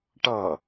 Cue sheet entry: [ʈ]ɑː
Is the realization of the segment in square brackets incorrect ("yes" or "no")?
no